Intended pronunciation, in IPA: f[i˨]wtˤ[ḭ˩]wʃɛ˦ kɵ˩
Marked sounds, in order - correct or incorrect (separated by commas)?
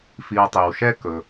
correct, incorrect